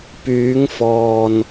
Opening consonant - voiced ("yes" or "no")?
no